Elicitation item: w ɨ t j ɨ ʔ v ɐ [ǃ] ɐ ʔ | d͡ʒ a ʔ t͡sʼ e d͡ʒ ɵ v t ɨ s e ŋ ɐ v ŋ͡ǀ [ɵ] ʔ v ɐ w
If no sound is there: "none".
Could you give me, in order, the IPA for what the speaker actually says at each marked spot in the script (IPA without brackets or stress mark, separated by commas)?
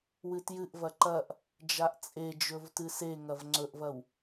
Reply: ǃ, ɵ